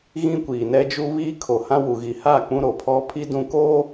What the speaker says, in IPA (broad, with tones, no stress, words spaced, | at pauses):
ɣĩ˦kʷiː˨nɛ˦ d͡ʒu˦βiː˦ kʰo˨hã˦wu˨ ɣi˨ha˦˨ k͡pũ˦ɾo˨pʰɔ˦ pʰi˦dũ˦koː˦